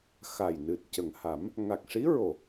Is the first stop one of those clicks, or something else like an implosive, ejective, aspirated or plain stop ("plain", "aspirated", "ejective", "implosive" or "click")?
plain